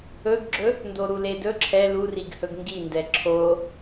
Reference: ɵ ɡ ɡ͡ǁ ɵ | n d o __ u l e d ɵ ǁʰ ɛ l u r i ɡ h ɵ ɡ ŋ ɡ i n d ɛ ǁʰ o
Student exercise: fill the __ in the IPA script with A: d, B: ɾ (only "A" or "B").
B